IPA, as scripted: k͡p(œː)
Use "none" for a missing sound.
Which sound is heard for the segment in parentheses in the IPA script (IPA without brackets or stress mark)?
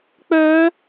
œː